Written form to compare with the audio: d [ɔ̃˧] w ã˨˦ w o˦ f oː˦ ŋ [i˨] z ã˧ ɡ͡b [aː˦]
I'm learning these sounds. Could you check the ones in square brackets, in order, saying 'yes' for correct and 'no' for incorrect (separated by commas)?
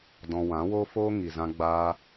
yes, yes, no